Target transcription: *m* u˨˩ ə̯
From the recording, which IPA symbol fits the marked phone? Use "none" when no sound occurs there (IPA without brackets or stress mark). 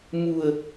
m